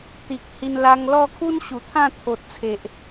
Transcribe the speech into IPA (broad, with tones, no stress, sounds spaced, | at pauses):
t̪ i˨ k̚ h i˧ n l a˧ ŋ l ɔ˥˧ kʰ u˦ n ɕ u˨˩ t̪ʰ ã˥˧ t̪ʰ o˨ t̚ t͡sʰ e˨ ʔ